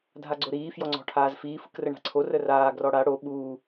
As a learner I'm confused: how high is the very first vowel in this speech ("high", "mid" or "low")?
low